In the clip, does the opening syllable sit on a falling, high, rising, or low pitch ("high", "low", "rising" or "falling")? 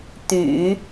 low